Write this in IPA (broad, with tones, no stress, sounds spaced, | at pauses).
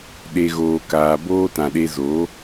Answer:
ɗ e˨ ɣ oː˨ k aː˨ b oː˧ t ã˨ ɗ e˧ z oː˨˦